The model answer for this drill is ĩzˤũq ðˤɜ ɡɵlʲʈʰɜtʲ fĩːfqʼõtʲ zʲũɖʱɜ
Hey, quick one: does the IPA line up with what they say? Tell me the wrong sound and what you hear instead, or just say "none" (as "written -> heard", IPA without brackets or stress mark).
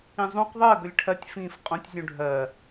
none